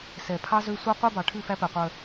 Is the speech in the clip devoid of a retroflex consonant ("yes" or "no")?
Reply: no